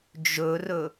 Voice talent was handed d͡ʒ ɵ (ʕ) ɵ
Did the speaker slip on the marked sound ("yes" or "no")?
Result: yes